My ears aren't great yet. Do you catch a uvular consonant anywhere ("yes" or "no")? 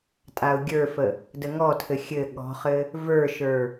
yes